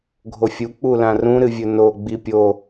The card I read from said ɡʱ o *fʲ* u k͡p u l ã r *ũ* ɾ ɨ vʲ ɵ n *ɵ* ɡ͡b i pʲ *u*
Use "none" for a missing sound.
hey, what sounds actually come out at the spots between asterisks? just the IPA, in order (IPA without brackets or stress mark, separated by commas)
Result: fʲ, ũ, o, o